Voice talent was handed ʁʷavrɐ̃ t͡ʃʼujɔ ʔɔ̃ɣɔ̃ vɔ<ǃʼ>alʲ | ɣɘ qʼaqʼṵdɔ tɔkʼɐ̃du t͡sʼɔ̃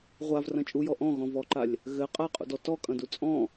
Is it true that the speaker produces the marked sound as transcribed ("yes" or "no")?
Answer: no